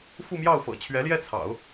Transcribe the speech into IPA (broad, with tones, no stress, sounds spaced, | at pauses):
f u˥˧ m j ɑ˥˩ ʊ̯ f ɤ̰˨˩ t͡ɕʰ ɥ ɛ˧˥ l j ɛ˥˩ t͡sʰ ɑ̰˨˩˦ ʊ̯